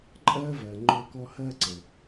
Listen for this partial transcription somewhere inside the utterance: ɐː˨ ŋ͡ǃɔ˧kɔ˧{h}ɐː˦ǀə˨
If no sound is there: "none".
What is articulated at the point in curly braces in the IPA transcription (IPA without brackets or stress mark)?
h